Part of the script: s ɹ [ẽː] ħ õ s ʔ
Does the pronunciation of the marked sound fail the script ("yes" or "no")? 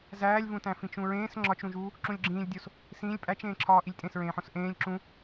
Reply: no